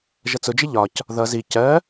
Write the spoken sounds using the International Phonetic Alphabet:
ʒ ʌ t͡s ʊ d͡ʒ ɪ ʎ ɒ c | ð ʌ z i c ɜ

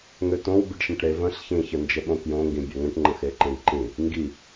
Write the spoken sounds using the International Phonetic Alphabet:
ŋ ø t õ w bʲ ə ɖ ʃ ẽ ʈ ɾ e v ə̃ ɬ ç ĩ ç ə n d͡ʒ ə ɓ õ k j õ ŋ ɡ ĩ bʲ ø ŋ ə̃ ʈ ŋ͡ǃ ə̃ x e ǃ ẽ ɖ ǃ ĩ | ŋ ɡ i

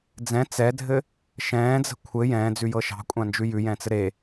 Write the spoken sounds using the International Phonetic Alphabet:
d͡z ɛ̃ t͡s ɛ dʱ ɘ | ʃ ɛ̃ː d͡z ə̤ kʷʰ ɘ j ɛ̃ː d͡z ʉ j ɤ ʃ ɑ̤ kʷʼ ã n d͡ʒ ʉ j ʉ j ɛ̃ t͡s ɘ ɾ e

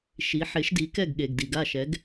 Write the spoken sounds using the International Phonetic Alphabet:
ʃ i˩˥ ħ e˩˥ ʃ d i˩˥ k ɛ˥˩ ɡ ɠ e˩ ɡ d i˩ ɡ a˥˩ ʃ ɛ˩˥ ɡ

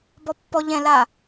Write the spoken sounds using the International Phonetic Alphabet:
b ɔ pː ɔ ʎ ɛ̃ l a

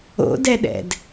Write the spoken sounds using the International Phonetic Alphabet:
o̰ d ɛ ɗ ɛ̰ d

